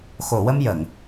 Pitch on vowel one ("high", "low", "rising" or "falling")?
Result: low